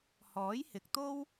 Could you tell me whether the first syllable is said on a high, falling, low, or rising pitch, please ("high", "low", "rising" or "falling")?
rising